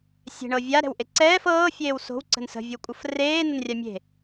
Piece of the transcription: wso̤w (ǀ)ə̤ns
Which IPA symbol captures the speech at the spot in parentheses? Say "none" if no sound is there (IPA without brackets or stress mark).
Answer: ǀ